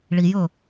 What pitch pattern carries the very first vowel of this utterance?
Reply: low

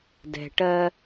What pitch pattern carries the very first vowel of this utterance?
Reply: low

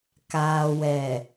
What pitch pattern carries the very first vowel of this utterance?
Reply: low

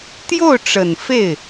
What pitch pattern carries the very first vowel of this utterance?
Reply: falling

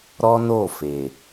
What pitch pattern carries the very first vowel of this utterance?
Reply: high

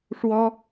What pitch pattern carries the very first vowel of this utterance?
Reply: high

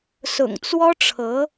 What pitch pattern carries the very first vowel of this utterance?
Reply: low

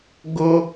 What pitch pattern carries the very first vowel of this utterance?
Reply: high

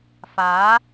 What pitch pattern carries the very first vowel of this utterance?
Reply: rising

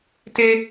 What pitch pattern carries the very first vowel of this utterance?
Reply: high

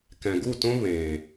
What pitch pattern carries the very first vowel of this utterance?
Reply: low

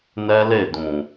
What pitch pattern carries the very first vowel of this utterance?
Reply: high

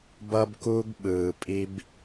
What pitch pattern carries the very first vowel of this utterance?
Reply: high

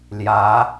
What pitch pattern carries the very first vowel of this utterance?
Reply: rising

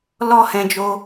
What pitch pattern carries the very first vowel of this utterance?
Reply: high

